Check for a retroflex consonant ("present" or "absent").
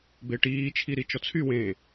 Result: present